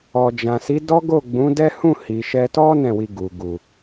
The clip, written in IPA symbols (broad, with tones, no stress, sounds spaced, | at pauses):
ɔ˨ d͡ʒ ã˨ s i˨˦ d ɔ˦ ɡ o˦˨ ɡ͡b ũ˨˦ d ɛ˦ h ũ˦˨ h i˨ ʃ ɛ˧ t ɔ˦ n ɛ̃˦˨ w i˧ ɡ u˨ ɡ u˨